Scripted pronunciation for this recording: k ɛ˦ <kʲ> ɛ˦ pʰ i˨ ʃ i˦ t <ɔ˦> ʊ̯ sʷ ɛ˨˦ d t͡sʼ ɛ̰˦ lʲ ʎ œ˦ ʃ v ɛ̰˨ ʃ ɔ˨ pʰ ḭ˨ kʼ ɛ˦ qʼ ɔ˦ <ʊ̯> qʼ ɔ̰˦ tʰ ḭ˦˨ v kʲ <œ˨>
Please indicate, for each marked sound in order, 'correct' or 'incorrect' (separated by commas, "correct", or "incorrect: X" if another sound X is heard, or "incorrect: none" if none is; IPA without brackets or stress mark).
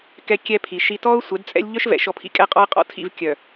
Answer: correct, correct, incorrect: ə̯, correct